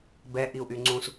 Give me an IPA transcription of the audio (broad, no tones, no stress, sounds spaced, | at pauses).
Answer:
b ɛ ʔ i u̯ ʔ y ŋ͡ǀ ũ s